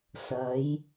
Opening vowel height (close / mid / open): open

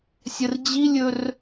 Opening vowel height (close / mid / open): mid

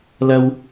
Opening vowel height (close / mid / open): open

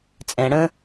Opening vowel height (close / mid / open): mid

